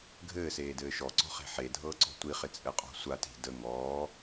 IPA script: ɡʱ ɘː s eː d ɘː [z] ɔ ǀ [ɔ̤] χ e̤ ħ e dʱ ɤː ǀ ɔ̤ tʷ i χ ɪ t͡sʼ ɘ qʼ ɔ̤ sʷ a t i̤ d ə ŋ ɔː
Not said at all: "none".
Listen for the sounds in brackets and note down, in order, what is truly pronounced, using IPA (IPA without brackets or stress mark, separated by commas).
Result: ʃ, ɔ̤